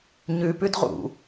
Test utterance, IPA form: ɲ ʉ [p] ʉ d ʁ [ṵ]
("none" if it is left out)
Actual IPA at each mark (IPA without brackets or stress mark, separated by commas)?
p, ṵ